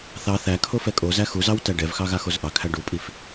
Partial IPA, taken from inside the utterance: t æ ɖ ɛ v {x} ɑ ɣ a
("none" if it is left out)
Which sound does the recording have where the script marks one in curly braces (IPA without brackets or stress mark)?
x